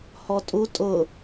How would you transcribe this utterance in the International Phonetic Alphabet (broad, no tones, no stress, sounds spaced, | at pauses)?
h ɔ tʼ u tʼ ʊ